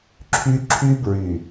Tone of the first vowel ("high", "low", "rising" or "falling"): high